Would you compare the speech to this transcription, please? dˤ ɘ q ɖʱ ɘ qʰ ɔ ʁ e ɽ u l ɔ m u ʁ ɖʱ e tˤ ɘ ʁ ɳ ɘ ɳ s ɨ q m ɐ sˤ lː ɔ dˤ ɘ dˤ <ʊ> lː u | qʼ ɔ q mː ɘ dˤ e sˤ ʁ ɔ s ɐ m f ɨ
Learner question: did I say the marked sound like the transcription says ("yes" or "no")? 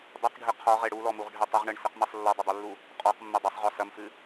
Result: no